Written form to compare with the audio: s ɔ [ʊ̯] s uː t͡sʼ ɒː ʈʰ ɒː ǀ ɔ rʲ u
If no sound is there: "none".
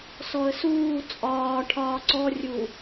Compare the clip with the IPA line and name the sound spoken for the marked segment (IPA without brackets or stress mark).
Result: ə̯